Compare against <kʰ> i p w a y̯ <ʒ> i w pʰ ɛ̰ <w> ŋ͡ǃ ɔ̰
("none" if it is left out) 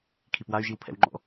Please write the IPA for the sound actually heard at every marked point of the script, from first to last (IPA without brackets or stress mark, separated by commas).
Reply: kʰ, ʒ, w